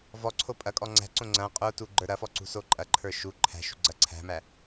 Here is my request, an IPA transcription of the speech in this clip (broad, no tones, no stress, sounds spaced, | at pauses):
v ɔ ǀʰ o pʼ ɐ kʼ ɔ ŋ͡ǀ æ̤ ǀ õ ŋ͡ǀ ɐ̃ qʼ o t u ɡ͡ǃ ə˞ ɾ ɐ f ɔ ǀ ṳ s o ǃʼ ɐ ǃʰ ə˞ ʃ u ǃʰ æ̤ ʃ ṳ ɡ͡ǀ ɐ ǀʰ æ̤ m æ